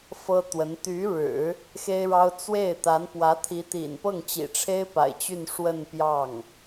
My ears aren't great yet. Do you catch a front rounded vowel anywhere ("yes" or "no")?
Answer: yes